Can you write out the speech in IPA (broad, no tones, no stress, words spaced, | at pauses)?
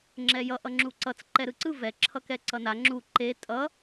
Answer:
ŋ͡ǁɛjʌ ʔʌŋ͡ǁuǀʌt͡s ǃɛɾɯǀɯ vɛ ǁʰʌkɛǀʌna ŋ͡ǁu ǃe tʼʌ